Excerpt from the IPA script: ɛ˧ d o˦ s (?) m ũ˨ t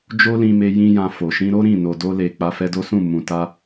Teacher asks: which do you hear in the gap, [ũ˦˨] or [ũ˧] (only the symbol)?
ũ˦˨